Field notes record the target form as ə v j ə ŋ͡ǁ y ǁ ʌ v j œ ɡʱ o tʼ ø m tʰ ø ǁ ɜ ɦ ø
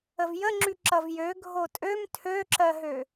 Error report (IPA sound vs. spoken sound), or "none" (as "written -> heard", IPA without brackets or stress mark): œ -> ø